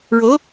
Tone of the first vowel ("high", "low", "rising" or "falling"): rising